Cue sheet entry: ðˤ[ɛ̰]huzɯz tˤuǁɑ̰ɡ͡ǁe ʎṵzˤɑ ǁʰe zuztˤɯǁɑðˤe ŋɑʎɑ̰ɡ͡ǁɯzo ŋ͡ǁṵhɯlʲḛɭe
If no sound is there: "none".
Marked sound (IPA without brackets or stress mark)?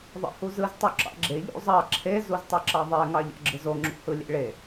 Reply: ḛ